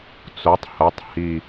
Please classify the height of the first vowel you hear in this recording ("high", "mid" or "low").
mid